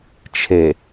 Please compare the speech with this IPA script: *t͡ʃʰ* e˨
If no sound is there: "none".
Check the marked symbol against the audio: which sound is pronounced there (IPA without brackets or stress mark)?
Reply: t͡ʃʰ